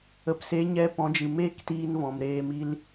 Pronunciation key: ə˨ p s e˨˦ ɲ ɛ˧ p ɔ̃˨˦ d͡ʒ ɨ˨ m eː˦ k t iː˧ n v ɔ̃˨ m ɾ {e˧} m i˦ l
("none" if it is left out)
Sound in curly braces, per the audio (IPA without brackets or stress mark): eː˧